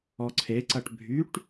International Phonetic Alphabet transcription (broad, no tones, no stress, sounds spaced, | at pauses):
ɔ ǀʰ e ǀ ɐ ʈ bʱ y ʈ